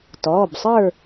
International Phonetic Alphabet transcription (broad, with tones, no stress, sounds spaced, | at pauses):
t ɔː˩˧˩ b sˤ ə˞˥˨